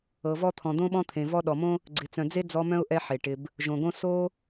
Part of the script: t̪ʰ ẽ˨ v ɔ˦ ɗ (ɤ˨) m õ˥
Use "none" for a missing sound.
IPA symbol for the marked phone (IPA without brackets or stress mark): ɔ˨